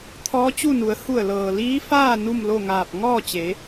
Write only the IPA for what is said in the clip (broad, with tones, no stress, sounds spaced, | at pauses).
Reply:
t̪ʰ ɔː˧˥ t͡ɕ u˥˨ n u˩˧ ə̯ h u˧˩ ə̯ l ɤː˩ l iː˧˥ f aː˥˨ n u˥˨ m l o˥˨ ŋ aː˧˩ p̚ ŋ ɔː˥˨ t͡ɕ e˩˧